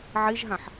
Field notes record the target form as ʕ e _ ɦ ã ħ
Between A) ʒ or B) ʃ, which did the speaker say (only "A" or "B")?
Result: A